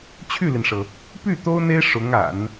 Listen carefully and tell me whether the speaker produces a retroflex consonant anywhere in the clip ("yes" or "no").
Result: yes